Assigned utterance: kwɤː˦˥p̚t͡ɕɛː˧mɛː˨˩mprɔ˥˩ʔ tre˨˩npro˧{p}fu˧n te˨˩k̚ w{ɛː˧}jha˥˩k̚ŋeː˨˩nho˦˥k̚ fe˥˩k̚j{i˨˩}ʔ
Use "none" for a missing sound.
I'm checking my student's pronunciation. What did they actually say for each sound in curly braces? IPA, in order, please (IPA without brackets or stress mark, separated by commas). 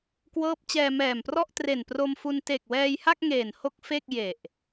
m, ɛː˧, e˨˩